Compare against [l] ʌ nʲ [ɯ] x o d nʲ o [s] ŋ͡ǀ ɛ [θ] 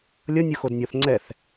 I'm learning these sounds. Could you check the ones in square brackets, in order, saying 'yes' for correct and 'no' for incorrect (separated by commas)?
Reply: no, yes, no, yes